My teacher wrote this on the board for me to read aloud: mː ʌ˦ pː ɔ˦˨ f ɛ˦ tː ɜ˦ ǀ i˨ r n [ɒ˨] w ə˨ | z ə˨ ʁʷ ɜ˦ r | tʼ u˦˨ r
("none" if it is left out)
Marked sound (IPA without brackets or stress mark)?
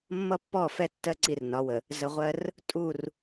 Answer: ɒ˨˦